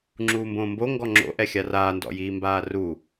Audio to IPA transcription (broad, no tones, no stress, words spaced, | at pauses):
ŋ͡ǁuːmbõːmbo ŋɡɔŋ͡ǁo̰ ʔɛxʲaraː ndɔ̰jiːmbaːru